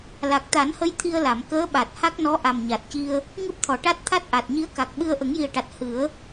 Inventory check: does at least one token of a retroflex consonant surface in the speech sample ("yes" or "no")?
yes